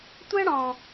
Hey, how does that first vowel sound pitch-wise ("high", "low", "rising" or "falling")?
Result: high